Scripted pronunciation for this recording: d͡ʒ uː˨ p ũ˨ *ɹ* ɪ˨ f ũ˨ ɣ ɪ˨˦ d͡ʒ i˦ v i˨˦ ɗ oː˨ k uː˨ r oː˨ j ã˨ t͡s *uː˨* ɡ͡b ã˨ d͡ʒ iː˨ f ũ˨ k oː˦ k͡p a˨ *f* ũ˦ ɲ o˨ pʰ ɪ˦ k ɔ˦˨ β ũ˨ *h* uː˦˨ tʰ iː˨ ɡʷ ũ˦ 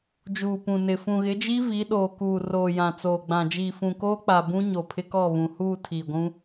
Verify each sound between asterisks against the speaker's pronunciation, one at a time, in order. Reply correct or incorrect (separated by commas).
incorrect, incorrect, incorrect, correct